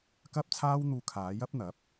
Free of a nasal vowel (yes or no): yes